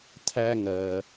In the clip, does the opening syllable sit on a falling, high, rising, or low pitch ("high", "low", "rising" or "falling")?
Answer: high